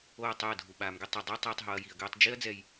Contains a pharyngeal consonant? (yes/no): no